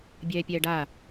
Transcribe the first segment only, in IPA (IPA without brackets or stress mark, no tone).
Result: bʲ